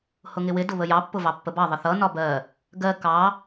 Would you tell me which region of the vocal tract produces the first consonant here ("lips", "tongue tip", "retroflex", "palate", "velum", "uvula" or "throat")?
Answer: throat